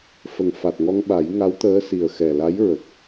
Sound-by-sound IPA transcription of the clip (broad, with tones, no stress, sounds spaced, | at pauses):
f ə˨˩˨ ŋ f a˨˩ t̚ ŋ ɔ˧ ŋ ɓ a˨˩˦ j ŋ a˧˥ w t̪ əː˧˥ s i˨˩ ə̯ x ɛ˨˩ l a˧˥ j ɹ ə˨˩ k̚